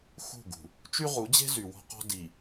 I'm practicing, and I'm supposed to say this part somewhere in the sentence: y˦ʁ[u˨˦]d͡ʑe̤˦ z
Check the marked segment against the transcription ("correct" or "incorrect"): correct